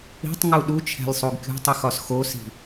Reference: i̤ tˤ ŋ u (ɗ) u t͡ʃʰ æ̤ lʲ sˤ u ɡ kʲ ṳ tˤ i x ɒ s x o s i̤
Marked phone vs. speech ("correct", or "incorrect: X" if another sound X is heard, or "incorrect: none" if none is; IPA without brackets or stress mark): correct